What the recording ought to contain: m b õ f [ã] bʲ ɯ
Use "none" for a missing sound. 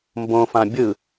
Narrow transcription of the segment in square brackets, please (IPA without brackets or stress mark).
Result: ã